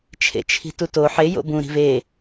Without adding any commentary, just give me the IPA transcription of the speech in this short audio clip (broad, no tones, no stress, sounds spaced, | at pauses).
t͡ʃʰ ḛ t͡ʃʰ i̤ t u t o ħ e j o̰ b ũ ɾ i̤ v e